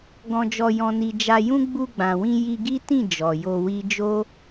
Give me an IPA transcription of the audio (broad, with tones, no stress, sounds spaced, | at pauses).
ɡ ɔ̃˧ d͡ʒ ɔ˧ j ɔ̃˧ n i˧ d͡ʒ a˧ j ũ˦ ɡ͡b u˧ ɡ͡b ã˨ w ĩ˧ j i˧ ɡ i˦ t ĩ˦˨ d͡ʒ ɔ˨ j o˧ w i˦ d͡ʒ o˦